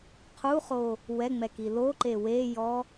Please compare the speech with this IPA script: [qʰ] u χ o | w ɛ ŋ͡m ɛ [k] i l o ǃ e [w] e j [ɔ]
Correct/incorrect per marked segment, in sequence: correct, correct, correct, correct

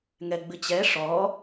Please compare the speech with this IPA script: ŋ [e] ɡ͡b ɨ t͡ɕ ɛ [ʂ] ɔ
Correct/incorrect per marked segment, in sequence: incorrect, correct

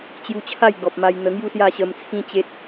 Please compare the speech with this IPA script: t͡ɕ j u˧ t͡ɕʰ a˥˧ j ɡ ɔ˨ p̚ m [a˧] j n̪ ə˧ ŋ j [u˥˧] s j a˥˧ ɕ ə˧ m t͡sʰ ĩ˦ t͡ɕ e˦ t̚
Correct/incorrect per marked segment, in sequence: correct, correct

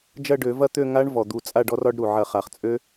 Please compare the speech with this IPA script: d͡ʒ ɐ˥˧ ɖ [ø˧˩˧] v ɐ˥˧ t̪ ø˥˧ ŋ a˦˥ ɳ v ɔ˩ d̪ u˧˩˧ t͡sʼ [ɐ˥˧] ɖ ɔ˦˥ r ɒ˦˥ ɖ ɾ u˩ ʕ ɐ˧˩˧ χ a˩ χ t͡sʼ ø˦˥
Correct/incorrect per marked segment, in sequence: correct, incorrect

